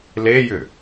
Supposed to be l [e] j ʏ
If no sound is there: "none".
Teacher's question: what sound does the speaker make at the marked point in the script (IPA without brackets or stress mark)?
e